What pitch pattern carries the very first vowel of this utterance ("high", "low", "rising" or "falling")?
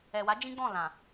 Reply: low